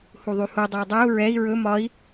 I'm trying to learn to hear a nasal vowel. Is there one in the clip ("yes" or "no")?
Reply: no